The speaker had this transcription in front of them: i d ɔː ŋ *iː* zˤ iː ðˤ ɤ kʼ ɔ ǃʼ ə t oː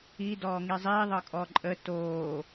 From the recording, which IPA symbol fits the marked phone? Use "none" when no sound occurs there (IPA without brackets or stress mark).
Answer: i